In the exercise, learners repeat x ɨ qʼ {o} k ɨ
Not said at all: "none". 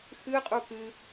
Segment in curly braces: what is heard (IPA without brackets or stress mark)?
u